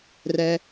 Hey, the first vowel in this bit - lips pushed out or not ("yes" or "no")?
no